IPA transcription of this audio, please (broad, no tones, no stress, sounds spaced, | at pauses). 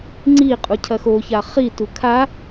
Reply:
ŋ͡ǀ i qʼ u cʰ ɐ x o ç a χ i t u kʰ a